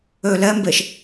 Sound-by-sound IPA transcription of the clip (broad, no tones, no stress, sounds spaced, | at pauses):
ø l ɛ m b e ʃ